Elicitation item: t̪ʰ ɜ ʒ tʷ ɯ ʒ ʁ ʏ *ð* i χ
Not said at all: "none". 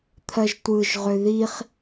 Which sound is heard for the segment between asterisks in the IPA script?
ð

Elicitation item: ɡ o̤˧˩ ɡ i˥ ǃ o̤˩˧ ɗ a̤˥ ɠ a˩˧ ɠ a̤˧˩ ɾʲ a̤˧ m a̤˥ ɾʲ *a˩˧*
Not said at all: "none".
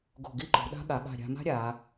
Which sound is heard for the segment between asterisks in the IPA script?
a˩˧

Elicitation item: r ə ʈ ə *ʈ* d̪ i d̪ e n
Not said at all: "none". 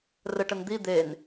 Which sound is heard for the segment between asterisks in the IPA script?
n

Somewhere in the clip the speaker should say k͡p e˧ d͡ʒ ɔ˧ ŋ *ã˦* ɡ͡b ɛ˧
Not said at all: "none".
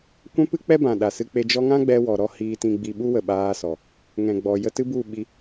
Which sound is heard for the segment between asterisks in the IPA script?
ã˦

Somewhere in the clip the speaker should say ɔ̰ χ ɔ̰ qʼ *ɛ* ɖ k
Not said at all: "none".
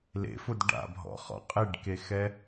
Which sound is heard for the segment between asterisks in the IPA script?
e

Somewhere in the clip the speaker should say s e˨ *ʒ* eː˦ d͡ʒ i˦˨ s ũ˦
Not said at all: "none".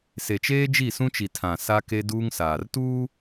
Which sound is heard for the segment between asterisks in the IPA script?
t͡ʃ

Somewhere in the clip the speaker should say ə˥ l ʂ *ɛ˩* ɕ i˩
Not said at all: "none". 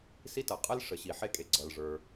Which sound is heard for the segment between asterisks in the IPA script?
ə˩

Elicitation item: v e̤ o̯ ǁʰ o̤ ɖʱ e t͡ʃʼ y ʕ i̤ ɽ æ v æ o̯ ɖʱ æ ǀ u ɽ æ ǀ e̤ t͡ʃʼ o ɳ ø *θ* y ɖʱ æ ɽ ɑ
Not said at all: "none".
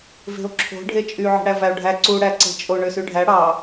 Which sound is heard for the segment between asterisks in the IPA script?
s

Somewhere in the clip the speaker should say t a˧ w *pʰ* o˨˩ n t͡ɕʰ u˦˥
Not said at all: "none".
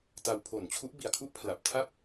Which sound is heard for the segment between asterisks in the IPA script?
pʰ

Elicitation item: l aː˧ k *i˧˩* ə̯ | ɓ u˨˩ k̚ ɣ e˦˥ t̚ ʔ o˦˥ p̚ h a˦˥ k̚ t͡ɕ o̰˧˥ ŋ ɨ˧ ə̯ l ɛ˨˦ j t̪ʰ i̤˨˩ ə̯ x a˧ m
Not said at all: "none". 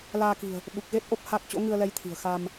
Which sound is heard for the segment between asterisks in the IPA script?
i̤˨˩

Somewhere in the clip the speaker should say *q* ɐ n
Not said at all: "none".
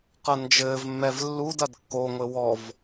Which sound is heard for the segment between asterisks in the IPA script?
q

